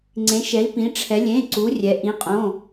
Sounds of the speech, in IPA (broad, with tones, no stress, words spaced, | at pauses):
ŋ͡ǀẽ˩˧ʃɛ˩˧i̯pĩ˩˧ʈ͡ʂʰɛ˩˧ lʲẽ˩˧˩ǀu˩˧rʲɛ˩˧ ʔĩ˩˧ qʼõ˩˧˩